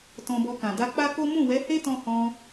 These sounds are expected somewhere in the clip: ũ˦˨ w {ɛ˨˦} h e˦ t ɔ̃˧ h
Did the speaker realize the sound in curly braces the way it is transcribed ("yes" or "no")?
yes